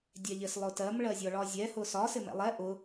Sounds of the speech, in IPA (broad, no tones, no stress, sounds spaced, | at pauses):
dʲ ɛ ʎ ɪ s lˠ ʊ t ɜ m ɭ ɜ zʲ ɔ ɭ ɒ zʲ ɛ h ʊ s ɒ s ɪ m ɛ̰ lˠ ɛ ʔ ʊ